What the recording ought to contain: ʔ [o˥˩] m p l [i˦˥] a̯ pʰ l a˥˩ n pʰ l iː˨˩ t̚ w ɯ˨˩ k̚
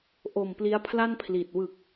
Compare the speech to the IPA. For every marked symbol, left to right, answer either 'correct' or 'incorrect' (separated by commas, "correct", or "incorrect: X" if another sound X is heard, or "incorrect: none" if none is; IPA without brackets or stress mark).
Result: incorrect: o˨˩, correct